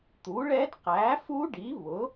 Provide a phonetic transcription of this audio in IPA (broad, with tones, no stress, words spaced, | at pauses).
t̪u˩˥ɭɛ˦˥d qæ˩˥fu˦˥ɖi˩˥ βʊ˩˥